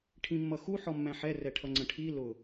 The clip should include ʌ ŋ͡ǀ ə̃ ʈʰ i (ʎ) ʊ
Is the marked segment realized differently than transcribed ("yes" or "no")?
yes